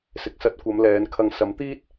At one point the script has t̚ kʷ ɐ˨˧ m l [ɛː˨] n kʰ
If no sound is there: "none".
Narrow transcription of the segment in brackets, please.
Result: ɛː˨˧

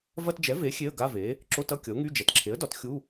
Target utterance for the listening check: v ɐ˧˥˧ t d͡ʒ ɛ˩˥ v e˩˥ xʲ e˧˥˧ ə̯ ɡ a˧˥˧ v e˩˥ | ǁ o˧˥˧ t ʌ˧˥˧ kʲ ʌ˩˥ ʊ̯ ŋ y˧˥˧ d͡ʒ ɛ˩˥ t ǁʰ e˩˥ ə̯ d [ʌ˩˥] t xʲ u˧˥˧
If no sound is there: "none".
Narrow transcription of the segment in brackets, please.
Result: ɒ˩˥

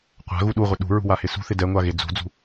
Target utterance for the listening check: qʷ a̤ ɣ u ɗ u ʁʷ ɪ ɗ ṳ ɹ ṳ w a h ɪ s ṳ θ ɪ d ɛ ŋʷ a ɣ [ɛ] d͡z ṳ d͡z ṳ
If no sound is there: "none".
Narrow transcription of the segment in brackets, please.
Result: e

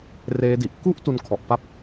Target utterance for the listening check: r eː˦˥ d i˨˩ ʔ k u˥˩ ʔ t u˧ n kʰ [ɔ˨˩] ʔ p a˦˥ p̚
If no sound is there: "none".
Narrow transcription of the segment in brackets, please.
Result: ɔ˨˩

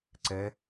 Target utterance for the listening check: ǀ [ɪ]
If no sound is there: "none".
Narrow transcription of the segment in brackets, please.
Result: ɛ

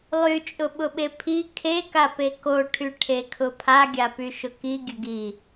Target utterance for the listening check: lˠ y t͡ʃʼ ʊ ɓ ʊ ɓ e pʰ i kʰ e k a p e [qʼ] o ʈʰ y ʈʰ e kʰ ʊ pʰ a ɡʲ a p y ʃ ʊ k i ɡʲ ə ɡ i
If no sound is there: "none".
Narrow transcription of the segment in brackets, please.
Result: k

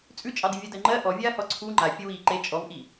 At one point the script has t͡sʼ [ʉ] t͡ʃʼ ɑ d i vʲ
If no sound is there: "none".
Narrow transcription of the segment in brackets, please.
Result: ʉ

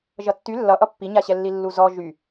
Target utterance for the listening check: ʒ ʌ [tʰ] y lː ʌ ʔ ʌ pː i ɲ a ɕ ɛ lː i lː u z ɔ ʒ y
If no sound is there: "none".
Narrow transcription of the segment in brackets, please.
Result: tː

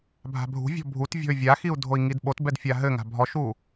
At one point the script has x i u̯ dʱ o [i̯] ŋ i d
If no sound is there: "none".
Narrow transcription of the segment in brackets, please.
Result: i̯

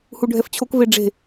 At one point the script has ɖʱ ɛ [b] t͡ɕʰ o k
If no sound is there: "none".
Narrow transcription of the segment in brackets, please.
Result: f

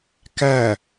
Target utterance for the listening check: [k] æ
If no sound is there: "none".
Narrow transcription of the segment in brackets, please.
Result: k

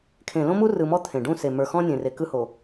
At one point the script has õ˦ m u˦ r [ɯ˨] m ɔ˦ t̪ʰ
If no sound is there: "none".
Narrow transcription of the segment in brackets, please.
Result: ɯ˨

